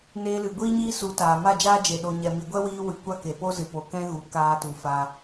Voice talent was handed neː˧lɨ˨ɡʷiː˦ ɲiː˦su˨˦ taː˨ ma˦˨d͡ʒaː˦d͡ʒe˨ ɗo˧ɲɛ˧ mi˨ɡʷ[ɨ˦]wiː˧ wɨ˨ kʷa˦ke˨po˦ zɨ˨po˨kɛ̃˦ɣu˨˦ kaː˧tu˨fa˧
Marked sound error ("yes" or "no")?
yes